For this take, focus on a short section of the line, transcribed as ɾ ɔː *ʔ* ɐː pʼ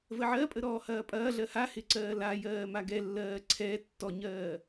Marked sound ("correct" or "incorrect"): incorrect